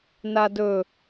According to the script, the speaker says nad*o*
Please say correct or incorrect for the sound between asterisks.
incorrect